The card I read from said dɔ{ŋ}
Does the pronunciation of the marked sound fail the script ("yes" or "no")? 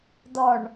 yes